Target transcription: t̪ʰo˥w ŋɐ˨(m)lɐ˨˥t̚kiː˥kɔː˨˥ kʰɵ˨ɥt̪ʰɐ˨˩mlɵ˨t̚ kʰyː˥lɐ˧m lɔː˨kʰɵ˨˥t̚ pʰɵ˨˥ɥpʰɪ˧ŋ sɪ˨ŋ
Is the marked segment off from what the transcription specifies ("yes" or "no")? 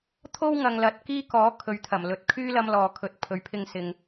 yes